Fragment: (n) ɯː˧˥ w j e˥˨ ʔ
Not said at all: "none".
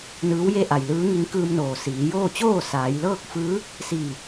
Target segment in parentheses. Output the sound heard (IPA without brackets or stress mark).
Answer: n